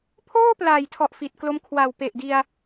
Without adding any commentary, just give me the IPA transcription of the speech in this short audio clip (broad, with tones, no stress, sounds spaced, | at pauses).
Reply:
pʰ oː˥˩ p l aː˨˩ j tʰ ɔ˨˩ ʔ f i˨˩ t̚ k l o˧ m kʰ w a˨˩ w p e˨˩ ʔ d i˧ a̯